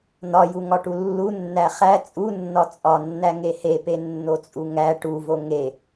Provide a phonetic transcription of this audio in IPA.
n̪ ɒ j u ŋ ɒ ʈ u lː u nː æ χ æ t͡sʼ u nː ɒ t͡sʼ ɒ nː æ ŋ e h e p e nː o t͡sʼ u ŋ æ ʈ u v o ŋ e

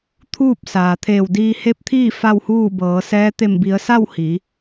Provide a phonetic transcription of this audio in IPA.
t̪ʰ uː˥˨ p̚ s aː˩ t̪ʰ eː˧˩ w d iː˧ h e˧˥ p̚ t̪ʰ iː˥˨ f a˥˨ w h uː˥˨ b ɤː˩˧ s ɛː˧˥ t̪ e˧˩ m b i˩˧ ə̯ s a˥˨ w h i˩˧

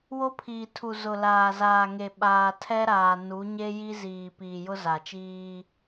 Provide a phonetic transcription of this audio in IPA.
w o˦ pʰ iː˨ tʰ u˨ z ʊ˨ l aː˨ z aː˨ ŋ e˨ ɓ aː˨ tʰ ɛ˦ ɾ aː˨ n u˨˦ ɲ e˦ j i˦ z iː˨ p iː˨ j ʊ˦ z a˨ t͡ʃ iː˦

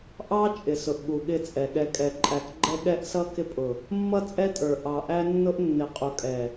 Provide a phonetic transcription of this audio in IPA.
ʔ ɑ˦ t͡ʃʼ ɪ˨ s ʊ˨ ʔ ɠ u˨ ɠ ɪ˦˨ t͡sʼ ɛ˨ ɠ ɛ˨ kʼ ɛ˨ ǃʼ æ˨ k ɡ͡ǃ ɛ˦ ɠ ɛ˦ ʔ s ʌ˦ k ɪ˦ pʼ ʊ˨ | mː ʌ˦ t͡sʼ ɛ˦ tʼ ə˞˨ ʔ ɑ˨ ʔ æ˦ nː ʊ˦ ʔ nː ɪ˨ qʼ u˨ kʼ ɛ˨

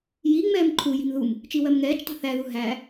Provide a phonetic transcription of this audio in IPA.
j i ŋ͡m ɛː m ǃʰ u j i̤ m ð u m | t͡ʃ i w ɜ m ŋ ɛː t͡ʃ tˤ ṳ θ æ ð u ɦ æ

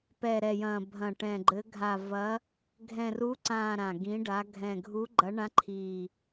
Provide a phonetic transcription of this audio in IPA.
p ɛ˨˩ ɾ ɛ˨˩ j ɐ̃˨˩ bʱ ɐ̃˨˩ ʈ ɛ̃˨˩ ɡ͡ǃ ɘ˨˦ ɡʱ a˨˩ v ɐ˨˦ | ɡʱ ɛ̃˨˩ r u˨˦ ǀ ã˨˩ ɾ ã˨˩ ɡ ĩ˨˦ ɖ a˨˦ ɡʱ ɛ̃˨˩ ɡʱ u˨˦ ɡ͡ǃ ɐ˨˦ ɳ ã˨˦ ǃʰ i˨˩

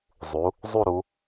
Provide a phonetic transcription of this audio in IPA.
zˤ u˩˧ | zˤ u˥˧ ɾ u˩˧

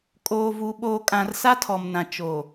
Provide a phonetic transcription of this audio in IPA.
kʼ oː˨ v u˨ ɓ oː˨ kʼ ã˨ r s a˦ tʰ ɔ˨ m n ã˨ t͡ʃ o˨

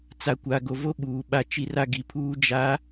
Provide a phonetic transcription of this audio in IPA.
t͡s a˨ kʷ a˨ ɡ o˨ v o˦ ɓ uː˨ ɓ a˦ t͡ʃ i˦ r a˦ ɡ i˨ pʰ uː˦ d͡ʒ a˨˦

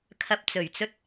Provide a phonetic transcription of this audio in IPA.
kʰ ɐ˨ p̚ t͡s ɵ˨˩ ɥ t͡s ɵ˥ t̚

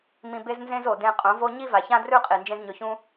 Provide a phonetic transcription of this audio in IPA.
m ĩ˨ b e˧ z n z ẽ˧ z o˨ d ẽ˧ qʼ õ˨˦ v o˦ ɲ i˦ v a˨ ç ã˦ d r ʉ˦ qʼ i˨ n d͡ʒ ẽ˦ z ɲ ɵ˧ ç ũ˦

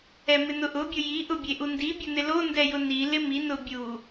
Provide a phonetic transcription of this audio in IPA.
ɛ m ɪ n ʊ ʔ ʊ bʲ ʊ j i ʔ ʊ bʲ e ʔ u n d i bʲ ʊ n ɪ l o n d ɛ j ʊ n i l ɪ m i n ʊ bʲ u

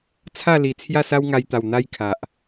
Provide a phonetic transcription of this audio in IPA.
t͡sʰ a˥˧ l i˨˩ t͡sʰ j a˥˧ s a˦ w ŋ a˧ j t̪ a˨˩ w n̪ a˦ j kʰ a˨ ʔ

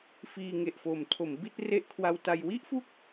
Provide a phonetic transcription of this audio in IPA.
f iː˧ ŋ e˨˩ ʔ f oː˨˩ m tʰ o˩˦ m b i˥˩ t̚ r e˦˥ ʔ kʰ w a˧ w t a˧ j w i˥˩ ʔ f u˦˥ k̚

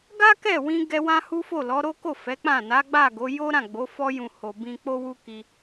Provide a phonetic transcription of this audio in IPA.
ɡ a˦ k ɛ˦˨ w ĩ˧ ɡ ɛ˧ w ã˦ h u˦ f o˦˨ l ɔ˨˦ ɾ o˦ k o˦˨ f ɛ˨˦ k͡p ã˦˨ n a˨˦ ɡ͡b a˦˨ ɡ o˨˦ j o˦ ɾ ã˦˨ ɡ͡b o˨˦ f ɔ˧ j ũ˨ h o˨ b ĩ˧ k͡p o˦ w u˦ k i˧

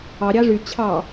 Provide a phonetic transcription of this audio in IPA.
ɑ ɾʲ ɑ ʐ y t͡ɕʰ ɑ

